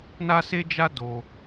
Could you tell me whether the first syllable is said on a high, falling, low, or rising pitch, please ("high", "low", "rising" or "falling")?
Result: high